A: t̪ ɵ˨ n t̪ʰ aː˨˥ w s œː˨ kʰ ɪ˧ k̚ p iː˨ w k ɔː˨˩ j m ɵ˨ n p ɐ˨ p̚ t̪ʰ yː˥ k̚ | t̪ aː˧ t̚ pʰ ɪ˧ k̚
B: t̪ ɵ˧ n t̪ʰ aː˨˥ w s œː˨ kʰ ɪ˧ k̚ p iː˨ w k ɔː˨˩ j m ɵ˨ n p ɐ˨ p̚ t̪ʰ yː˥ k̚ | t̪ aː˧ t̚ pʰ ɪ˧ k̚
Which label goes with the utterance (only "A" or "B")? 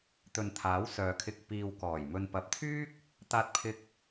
A